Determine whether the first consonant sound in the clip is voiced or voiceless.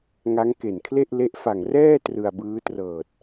voiced